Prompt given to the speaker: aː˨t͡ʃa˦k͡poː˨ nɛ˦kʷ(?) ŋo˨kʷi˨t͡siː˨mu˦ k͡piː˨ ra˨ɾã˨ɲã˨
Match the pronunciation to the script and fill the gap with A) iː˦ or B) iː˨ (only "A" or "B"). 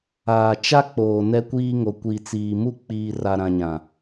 A